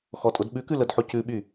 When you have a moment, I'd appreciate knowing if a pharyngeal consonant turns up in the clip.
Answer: yes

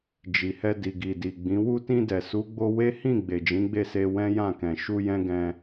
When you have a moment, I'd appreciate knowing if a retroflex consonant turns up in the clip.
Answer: no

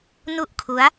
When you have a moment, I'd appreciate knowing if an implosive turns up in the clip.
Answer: no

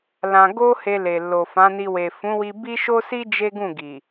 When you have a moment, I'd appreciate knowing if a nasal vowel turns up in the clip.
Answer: yes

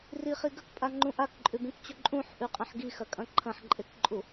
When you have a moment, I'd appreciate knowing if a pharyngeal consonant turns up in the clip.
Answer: yes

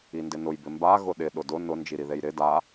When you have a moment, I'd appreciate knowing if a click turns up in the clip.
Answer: no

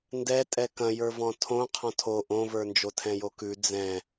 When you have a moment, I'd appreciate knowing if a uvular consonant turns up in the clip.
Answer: yes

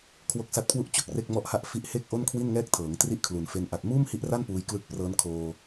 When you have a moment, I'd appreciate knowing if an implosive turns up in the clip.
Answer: no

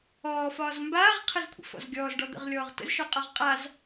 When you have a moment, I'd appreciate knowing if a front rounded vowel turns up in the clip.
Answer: no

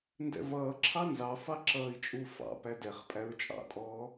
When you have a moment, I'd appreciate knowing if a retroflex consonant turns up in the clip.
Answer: no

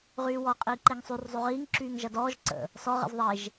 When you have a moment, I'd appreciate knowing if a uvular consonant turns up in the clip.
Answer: yes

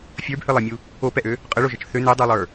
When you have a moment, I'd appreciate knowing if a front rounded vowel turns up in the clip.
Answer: yes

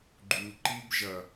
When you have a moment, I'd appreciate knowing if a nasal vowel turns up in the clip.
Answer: no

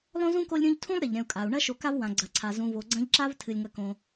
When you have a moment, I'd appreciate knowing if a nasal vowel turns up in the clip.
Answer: yes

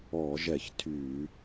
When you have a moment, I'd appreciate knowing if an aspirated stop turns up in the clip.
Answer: yes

